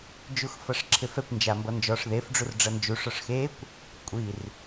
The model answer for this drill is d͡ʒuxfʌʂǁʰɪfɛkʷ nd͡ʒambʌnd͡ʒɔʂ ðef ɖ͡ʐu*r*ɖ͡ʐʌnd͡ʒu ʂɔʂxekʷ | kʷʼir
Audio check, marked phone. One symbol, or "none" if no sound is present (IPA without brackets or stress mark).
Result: r